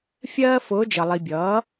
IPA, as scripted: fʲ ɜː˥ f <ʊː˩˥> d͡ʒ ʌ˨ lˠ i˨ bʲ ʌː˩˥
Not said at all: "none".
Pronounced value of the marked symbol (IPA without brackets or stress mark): ʊː˧˥